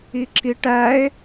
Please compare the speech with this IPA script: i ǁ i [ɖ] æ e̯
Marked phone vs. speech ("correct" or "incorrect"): incorrect